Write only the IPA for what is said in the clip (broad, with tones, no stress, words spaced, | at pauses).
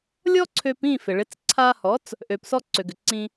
lʲɔ˥ǀʰø˧pĩ˥˩ fɪ˩ɭɪ˩˥t͡s ǀʰa˧hɔ˩˥t͡s | ʔø˩psɔ˧ ǀø˩ɡʏ˩ǀĩ˧